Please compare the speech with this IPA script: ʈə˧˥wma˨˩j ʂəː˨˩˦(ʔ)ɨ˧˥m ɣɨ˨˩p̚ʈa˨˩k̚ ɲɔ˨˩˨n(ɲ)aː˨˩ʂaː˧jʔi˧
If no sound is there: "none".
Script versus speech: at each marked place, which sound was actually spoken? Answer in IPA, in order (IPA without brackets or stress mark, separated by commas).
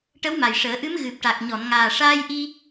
ʔ, ŋ